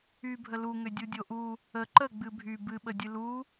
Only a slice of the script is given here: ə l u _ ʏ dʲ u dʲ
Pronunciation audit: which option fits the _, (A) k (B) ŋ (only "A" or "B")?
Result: B